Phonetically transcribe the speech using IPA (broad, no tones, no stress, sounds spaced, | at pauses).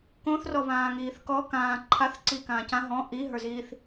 k õ θ r ɔ β ãː ŋ iː θ k ɔ k ãː ǃʰ a θ ǀ i k ãː c ã ɦ ɔ̃ ʔ i ɦ ə˞ z iː θ